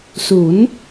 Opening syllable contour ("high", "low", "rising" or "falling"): rising